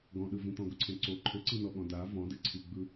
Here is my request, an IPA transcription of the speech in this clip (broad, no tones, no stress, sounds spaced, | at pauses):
ɡ ɔ̃ ɗ ɯ v ĩ t̪ ɔ̃ ɡ ʊ ǀʰ ẽ ǀ o ǃʰ ʊ ǀ i n ɔ ɠ ɔ̃ d a v ɔ̃ d ɨ ǀʰ i ɡ͡b ɯ